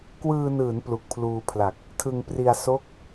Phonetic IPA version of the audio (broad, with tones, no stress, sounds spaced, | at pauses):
k w ɯː˧ n ɯː˩˦ n p l u˨˩ k̚ pʰ l uː˧ pʰ l a˨˩ k̚ | tʰ ɯ˧ ŋ p r i˧ a̯ s o˥˩ k̚